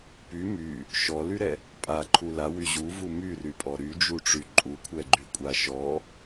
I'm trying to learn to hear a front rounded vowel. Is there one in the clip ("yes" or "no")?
yes